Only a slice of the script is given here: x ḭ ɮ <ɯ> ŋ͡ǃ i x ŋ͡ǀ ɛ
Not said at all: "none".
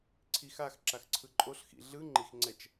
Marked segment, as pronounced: ɯ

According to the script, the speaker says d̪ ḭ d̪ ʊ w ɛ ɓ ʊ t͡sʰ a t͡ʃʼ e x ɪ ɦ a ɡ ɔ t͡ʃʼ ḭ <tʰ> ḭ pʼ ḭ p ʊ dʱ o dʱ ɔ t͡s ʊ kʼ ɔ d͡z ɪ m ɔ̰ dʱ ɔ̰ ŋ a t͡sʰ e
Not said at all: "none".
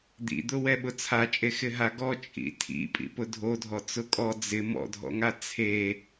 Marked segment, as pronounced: tʰ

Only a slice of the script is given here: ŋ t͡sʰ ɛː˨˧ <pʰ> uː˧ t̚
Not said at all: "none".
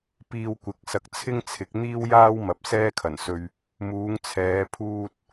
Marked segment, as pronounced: pʰ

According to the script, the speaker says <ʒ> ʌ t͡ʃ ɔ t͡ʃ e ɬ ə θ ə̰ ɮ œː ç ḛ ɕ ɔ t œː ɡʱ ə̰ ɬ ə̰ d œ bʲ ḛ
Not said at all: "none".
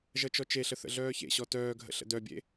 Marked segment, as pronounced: ʒ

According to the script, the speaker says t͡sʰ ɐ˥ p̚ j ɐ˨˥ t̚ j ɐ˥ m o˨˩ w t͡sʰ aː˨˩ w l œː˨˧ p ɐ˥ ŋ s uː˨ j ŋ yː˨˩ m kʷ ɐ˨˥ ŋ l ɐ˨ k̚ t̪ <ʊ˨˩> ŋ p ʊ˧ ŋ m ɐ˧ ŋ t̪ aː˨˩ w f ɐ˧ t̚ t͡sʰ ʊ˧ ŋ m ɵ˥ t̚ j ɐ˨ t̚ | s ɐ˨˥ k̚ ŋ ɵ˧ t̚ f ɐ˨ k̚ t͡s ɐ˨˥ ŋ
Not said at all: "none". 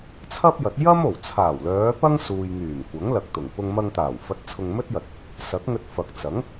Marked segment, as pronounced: ʊ˨˩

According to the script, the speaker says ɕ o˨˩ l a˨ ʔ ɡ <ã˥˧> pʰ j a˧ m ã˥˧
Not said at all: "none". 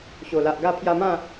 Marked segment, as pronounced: a˥˧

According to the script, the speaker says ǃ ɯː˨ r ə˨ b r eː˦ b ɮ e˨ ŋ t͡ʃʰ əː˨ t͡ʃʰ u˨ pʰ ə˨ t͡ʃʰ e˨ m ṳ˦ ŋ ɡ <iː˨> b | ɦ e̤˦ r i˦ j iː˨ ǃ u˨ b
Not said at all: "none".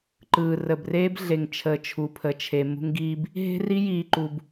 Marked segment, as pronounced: iː˦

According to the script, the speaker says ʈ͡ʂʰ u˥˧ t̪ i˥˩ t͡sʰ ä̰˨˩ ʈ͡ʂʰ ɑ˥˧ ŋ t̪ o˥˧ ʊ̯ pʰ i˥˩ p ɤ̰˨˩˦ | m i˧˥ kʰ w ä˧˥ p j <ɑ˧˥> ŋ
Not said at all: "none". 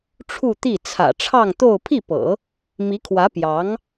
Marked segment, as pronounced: ɑ˧˥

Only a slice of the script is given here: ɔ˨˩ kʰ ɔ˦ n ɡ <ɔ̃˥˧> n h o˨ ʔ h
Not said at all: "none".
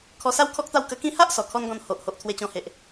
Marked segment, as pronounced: ɔ̃˧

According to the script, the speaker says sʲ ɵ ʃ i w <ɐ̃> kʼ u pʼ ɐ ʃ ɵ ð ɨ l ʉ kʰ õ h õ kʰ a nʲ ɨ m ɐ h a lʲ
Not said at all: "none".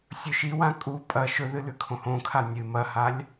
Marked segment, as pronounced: ã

